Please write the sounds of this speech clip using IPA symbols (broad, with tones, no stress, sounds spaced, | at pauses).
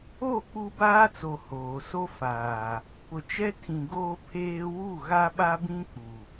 o˦˨ k͡p u˦ b aː˦ t͡s o˨ h oː˨ s o˦ f aː˨ | p ʊ˨ t͡ʃ ɛ˦ tʰ ĩ˨ ɡ oː˦ pʰ eː˦ w u˦˨ ɣ a˦ ɓ a˦ b ĩ˦ k͡p u˨